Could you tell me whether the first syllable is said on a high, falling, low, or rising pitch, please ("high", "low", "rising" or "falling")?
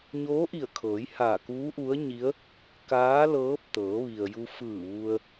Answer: rising